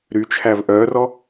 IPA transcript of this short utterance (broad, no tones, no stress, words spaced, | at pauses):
ɾyt͡ʃʰæv ʔœːrɔ